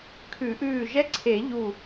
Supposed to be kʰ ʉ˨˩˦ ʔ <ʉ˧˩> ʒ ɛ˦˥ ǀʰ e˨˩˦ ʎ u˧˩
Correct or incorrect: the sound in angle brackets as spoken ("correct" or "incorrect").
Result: incorrect